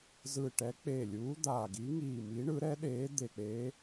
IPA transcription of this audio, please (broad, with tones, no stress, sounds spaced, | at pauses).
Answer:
z ɯ˧˩ ʈ ɛ˨˥ k͡p eː˧˩ lʲ uː˨˥ d̪ aː˧˩ ɡ i˨˥ ŋ iː˧˩ m i˨˥ ɳ ɯ˨˥ ɾ ɛ˨˥ ɗ eː˨˥ d̪ e˧˩ k͡p e˨˥